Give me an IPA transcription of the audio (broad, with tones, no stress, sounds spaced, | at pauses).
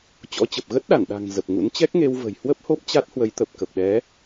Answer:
t͡ɕ ɔ̰˧˥ t͡ɕ ə˨˩ p̚ ɣ ə˦˥ t̚ ɗ a˧˩ n ɗ a̤˨˩ ŋ z ə˨˩ p̚ ŋ ṵ˧˥ n t͡ɕ ɛ˦˥ k̚ ŋ e˧ w v ə̤˨˩ j h w ə˦˥ p̚ h o˦˥ p̚ t͡ɕ a˦˥ t̚ h w ə˨˦ j t̪ ə˨˩ p̚ k ə˨˩ p̚ ɗ ɛ˨˦